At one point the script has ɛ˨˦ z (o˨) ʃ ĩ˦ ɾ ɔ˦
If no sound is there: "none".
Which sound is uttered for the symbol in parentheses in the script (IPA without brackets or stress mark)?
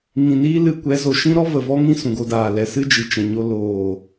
o˨